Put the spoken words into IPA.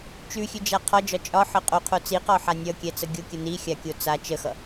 t͡ʃ ʉ xʲ ʉ d͡ʒ a qʰ ɒ d͡ʒ ɒ t͡ʃʼ ɒ ħ ə qʼ o qʰ o t͡s i q ɒ ħ a nʲ ʌ kʲ ɛ t͡s ə ɡʲ o kʲ ə n i xʲ a kʲ o t͡s a t͡ʃ ə x ʌ

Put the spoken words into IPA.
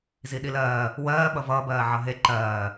z i ɗ i l ɜː | w ɜː ɓ ʌ v ʌː b ɜː ʕ ʌ ɦ e ǃ ɜː

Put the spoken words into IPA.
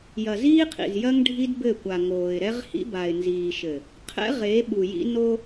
j ɐ˨ z iː˦ qʰ ḭ˨ z j ɐ˦ ŋ ɖʱ i˦ d b ɘ˦˨ kʷ a˨ ŋ oː˨ ɪ̯ ɾ ɛ˦ ʁ h ḭ˦ b a˨ ɪ̯ n z iː˨ ʃ ɘ˨ | qʰ ɛ̰˦ ʁ e˨˦ ɓ u˨ j ḭ˦ n o˦

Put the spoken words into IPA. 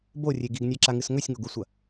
b o rʲ e ɡ i ɡ nʲ a ǁ a ŋ ɨ s ŋ ɵ sʲ ŋ o ɡ u sʷ ɐ

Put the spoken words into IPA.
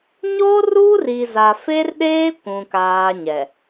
ɲ oː˦ r uː˦ r iː˨ z a˨ f e˦ r ɗ eː˦ kʷ ũ˨ k aː˦ ɲ ɛ˨

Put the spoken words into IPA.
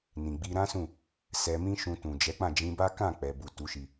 n ĩ˨ ɡ͡b i˧ ɾ ã˦ s ũ˦˨ | s ɛ˧ m ĩ˦ ʃ ũ˧ t ũ˨ d͡ʒ ɛ˨˦ k͡p ã˦˨ d͡ʒ ĩ˧ b a˦ k ã˦˨ k͡p ɛ˨ b u˨ t u˨˦ ʃ i˧

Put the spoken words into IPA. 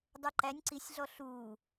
dˤ ɛ ǃ æ nʲ ǀ i sʲ ɮ ɔ ɬ u

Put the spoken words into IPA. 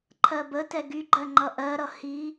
ǃʰ ɜ b ə t ɛ ɡ y ɡ͡ǃ ɜ ŋ͡ǃ ʌ ʔ ɜ ɾ ʌ h i

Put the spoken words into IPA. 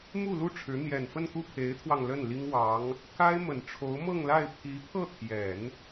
m u˥˧ l u˥˩ ʈ͡ʂʰ ɻ̩˧˥ n̪ j ɛ˨˩ n f ə˥˧ n k u˥˩ pʰ e˧˥ ɪ̯ t̪ʰ w ɑ˧ ŋ l ə˥˩ n l i˥ ŋ w ɑ˧˥ ŋ | k a˥ ɪ̯ m ə˨˩ n ʈ͡ʂʰ o˧˥ ʊ̯ m ɤ˥˧ ŋ l a˥˩ ɪ̯ pʰ i˧˥ pʰ ɤ˥˩ t̪ʰ j ɛ˨˩˦ n

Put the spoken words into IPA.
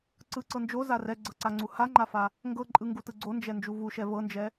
ǀ ɯ ǀ ɤ n d͡ʒ o z a r ɛ ɡ͡ǀ ɤ ǀ a ŋ͡ǀ u h a ŋ͡ǃ a f a | ŋ ɡ ɤ ǃʼ ɯ ŋ ɡ u t ɯ ɡ͡ǀ o n d͡ʒ ɛ n d͡ʒ u v u ʃ ɛ v ɤ n d͡ʒ ɛ

